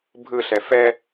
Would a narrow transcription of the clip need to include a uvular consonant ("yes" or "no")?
no